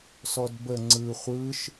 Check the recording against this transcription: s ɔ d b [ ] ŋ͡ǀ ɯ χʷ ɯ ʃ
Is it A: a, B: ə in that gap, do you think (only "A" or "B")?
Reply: B